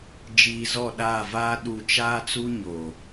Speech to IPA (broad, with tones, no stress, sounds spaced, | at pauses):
d͡ʒ iː˨ z ɔ˦˨ ɗ aː˦˨ v aː˦ ɗ u˨ t͡ʃ aː˦ t͡s u˦ ɲ o˨